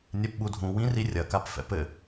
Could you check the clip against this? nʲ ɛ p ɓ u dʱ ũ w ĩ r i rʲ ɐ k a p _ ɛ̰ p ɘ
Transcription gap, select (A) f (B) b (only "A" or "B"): A